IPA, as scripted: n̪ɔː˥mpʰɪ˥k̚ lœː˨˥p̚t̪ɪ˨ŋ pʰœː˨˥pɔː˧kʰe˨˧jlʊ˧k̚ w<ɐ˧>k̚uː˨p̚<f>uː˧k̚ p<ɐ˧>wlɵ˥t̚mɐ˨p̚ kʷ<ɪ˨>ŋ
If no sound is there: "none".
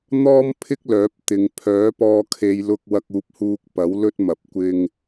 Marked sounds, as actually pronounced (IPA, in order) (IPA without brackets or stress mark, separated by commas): ɐ˧, h, ɐ˨˥, ɪ˧